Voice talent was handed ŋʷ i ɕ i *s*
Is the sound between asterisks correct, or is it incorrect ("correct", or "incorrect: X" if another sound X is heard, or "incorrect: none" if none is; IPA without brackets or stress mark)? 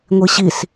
correct